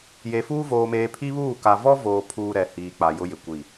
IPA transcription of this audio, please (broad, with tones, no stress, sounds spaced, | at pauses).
j e˨ f uː˦ v oː˨ m eː˨ pʰ i˦ β uː˦˨ k a˨ v ɔ˦ v oː˨ pʰ uː˦ ɾ ɛ˨ h iː˨ k͡p a˨ j ʊ˦ j ɪ˨ kʷ i˦˨